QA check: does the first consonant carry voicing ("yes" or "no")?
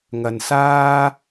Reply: yes